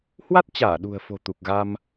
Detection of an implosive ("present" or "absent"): present